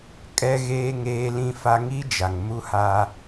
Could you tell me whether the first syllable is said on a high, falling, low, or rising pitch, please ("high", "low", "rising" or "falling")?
high